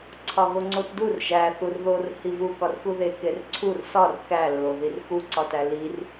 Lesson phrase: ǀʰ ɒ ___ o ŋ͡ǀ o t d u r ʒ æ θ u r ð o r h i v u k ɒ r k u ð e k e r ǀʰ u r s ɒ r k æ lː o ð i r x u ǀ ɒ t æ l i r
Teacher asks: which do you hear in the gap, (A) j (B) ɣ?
B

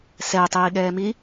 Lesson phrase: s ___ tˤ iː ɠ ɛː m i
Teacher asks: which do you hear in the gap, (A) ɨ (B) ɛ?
B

